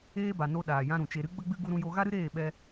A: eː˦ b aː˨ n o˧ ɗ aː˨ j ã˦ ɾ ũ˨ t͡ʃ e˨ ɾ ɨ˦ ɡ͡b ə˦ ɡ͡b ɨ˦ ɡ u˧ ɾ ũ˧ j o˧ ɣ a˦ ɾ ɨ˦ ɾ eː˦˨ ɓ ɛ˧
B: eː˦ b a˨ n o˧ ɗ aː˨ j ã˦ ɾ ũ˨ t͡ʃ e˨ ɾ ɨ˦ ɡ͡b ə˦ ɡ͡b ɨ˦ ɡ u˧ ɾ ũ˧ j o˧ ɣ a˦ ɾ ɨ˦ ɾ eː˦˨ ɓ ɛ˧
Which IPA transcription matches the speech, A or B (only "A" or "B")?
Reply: B